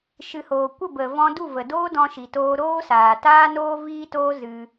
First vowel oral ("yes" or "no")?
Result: yes